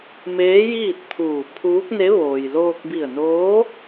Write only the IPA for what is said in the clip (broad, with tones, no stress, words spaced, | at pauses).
meː˧˥jiː˥˨t̚t̪ʰuː˧˩ pʰuː˧˥k̚ne˧˥ ʋoː˩jloː˧k̚bi˧˩ə̯noː˧˥